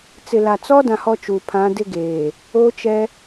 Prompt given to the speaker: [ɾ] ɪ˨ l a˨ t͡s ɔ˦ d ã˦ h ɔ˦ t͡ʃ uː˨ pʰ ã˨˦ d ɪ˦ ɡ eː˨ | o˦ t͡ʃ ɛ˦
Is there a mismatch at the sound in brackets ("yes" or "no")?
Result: yes